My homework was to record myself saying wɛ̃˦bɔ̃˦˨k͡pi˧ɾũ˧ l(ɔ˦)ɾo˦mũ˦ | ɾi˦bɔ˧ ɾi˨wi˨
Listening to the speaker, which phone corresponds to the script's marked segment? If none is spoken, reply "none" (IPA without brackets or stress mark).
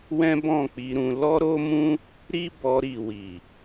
ɔ˦